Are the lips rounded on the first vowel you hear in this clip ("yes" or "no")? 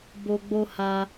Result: yes